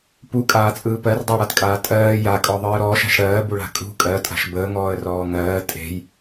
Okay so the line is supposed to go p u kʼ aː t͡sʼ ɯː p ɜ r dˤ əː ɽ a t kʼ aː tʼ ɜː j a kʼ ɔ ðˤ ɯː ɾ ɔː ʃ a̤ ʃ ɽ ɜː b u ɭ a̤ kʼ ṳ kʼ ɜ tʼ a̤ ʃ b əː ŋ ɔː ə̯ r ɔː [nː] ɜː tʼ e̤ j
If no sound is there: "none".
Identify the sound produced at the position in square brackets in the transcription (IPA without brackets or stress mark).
ŋ